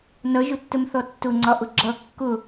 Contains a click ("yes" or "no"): yes